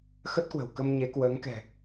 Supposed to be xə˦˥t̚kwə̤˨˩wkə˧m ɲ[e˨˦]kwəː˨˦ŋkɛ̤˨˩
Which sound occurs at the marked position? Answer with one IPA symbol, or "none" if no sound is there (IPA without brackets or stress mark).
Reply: e˨˦